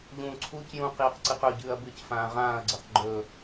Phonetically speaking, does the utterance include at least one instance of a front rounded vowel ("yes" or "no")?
no